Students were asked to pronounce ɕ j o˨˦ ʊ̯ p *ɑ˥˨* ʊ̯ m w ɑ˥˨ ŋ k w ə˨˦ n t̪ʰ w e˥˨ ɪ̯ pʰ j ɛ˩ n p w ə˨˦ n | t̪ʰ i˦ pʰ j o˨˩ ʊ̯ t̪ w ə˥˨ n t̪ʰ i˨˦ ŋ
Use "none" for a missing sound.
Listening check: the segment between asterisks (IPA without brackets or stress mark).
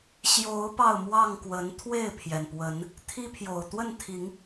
ɑ˥˨